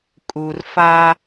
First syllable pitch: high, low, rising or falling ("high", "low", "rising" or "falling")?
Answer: low